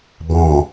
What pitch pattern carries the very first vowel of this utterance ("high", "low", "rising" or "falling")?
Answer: low